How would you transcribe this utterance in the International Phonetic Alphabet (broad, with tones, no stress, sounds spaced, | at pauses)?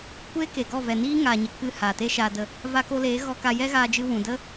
kʷ e˦ k e˨ ɡ ɔ˦˨ v ɛ˨ n iː˦ ŋ aː˨ ɲ ə˨ k ɨ˧ h aː˨ t e˦ ʃ aː˧ d ə˧ | v a˧ k o˧ l eː˨˦ ɣ ɔ˧ k a˧ j ɛ˦ ɣ aː˧ d͡ʒ ɨ˧ w ũ˨ d ə˦